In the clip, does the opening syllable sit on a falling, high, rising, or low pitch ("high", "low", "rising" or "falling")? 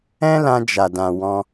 high